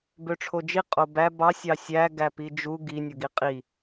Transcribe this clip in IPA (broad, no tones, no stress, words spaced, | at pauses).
bøʈ͡ʂʰod͡ʒi qʼobæ bɑ sʲɑsʲæ ɡæpid͡ʒu ɡi nʲoɡiqʼi